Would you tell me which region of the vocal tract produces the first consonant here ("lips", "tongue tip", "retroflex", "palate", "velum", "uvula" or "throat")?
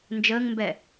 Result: tongue tip